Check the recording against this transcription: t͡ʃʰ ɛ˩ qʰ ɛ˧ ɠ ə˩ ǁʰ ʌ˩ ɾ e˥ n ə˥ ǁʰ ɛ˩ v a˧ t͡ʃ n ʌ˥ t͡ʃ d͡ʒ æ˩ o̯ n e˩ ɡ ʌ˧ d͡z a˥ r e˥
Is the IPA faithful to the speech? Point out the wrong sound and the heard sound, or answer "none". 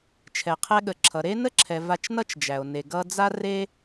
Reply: none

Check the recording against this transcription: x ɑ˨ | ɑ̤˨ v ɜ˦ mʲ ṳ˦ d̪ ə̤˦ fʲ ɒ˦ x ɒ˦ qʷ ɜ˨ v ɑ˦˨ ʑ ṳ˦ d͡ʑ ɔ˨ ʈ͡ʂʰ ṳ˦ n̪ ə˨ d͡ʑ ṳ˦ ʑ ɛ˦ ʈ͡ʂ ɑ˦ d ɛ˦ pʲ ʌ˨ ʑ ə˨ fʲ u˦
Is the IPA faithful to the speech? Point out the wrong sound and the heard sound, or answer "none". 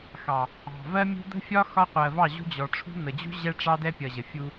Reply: none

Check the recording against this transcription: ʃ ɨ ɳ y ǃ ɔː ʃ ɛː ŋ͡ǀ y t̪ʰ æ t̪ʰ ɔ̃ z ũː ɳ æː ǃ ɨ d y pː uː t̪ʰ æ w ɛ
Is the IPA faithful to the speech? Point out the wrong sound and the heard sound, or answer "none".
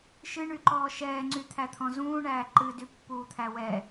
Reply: none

